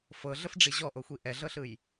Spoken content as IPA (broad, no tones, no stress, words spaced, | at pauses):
fɤɮəfɖ͡ʐi ʑɔʔoxʷi ʔɛɮɤɬɯj